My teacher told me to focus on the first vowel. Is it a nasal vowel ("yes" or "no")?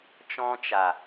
yes